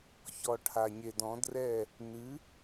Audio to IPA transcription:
ç ɔ˨ ʈʰ a˨ ɲ e˨ d ɔ̃˨˦ d r ɛ˦˨ | n ɨ˨˦

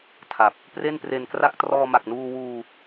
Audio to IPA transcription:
tʰ a˨˩ p̚ | p r e˥˩ n p r e˧ n k r a˥˩ k̚ t r ɔː˧ m a˨˩ k̚ n uː˧ w uː˧

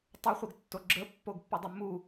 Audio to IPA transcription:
tˤ ʌ χʷ ə ɡ tː o ɡ͡ǁ ə pː o ɡ pː u dˤ u m u

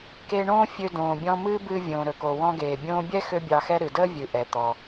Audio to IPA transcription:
k e˧ ɳ õː˥ fʲ ø˧ d õː˩ bʲ ɔ̃˧ m ɨː˥ b ɨː˧ vʲ õː˩ ɾ ɵ˩ k o˩ w ɔ̃˧ ɡ eː˩ bʲ õː˧ bʲ ɛ˥ x ø˥ bʲ ɑ˧ x ɛ˥ ɾ ɨ˩ d əː˥ vʲ ɨ˩ ʔ ɛ˩ t̪ ɔ˩

